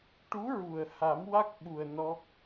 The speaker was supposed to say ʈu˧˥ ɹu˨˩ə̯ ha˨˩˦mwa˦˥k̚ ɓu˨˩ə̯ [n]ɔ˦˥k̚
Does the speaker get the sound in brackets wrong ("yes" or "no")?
no